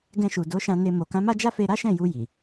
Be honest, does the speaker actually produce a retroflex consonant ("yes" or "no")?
no